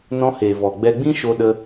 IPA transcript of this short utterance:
n ɔ̃˧ h eː˨ v ɔ˨ ɡ͡b ɛ˧ ɡ͡b ĩ˦ ʃ o˧ ɗ ə˧

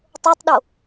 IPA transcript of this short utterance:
tˤ o tˤ ɗ o

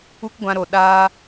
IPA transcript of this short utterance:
u˦ k ɡʷ ã˧ ɾ o˨ ɗ aː˧

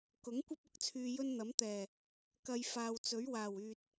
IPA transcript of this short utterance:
k ʊ˨˥ ŋ kʷ ɐ˥ p̚ ʊ˨˥ k̚ t͡sʰ yː˧ j ɵ˥ n n̪ ɐ˨˥ m t̪ ɛː˨˩ | k ɐ˧ j f aː˨ w t͡s ɵ˨˥ ɥ w aː˨˩ w yː˨ t̚

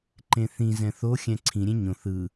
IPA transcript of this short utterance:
ǃ ẽ θ ĩ z ɛ̃ θ o xʲ ɛ̃ ǀʰ ĩ ɾʲ ẽ ɲ õ θ ɯ

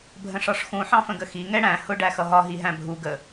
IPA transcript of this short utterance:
bʱ ə̃ ʂ ɒ ʂ x ũ ħ ɑ̃ f ə̃ ɡ ə x i ŋ ɛ ɽ æ̃ h ʊ ɖ æ x ʌ ɦ ɒ ɦ i ɦ æ̃ bʱ u ɡ ə

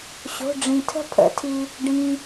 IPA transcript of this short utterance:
ɕ o̤˩˧˩ ɖ͡ʐ ĩ˩ tʰ ə̤˦˨ pʰ ə̰˨˩˦ tʰ i˩ | ɖ ĩ˩

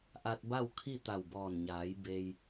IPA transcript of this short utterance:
ʔ a˧ t̚ b a˥˨ w kʰ i˥˨ t̪ a˧˩ w b ɔː˧˩ n ɲ aː˩˧ j b e˧ j

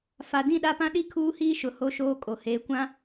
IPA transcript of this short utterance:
f a˨ d ĩ˦˨ ɗ a˦ p ã˦ ɗ i˦ kʰ uː˦ h iː˦ ʃ ʊ˨ h o˦ ʃ oː˦ kʼ o˨ h eː˨ kʷ ã˦

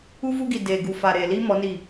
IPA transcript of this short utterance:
u˦ v u˦ ɡ i˨ d eː˨ ɡ u˨ f a˨ ɾ eː˨ l i˦ m ɔ˨˦ n i˦˨

